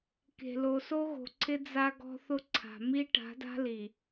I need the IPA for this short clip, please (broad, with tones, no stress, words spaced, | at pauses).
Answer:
ke̤˨lo˨ so˦ɣo̤˨ǀʰɪ˦ d͡za˦ ɡɔ̤˦θʊ˦ǀʰa̤˨ mi˦ ʈa̤˨˦da̤˦li˨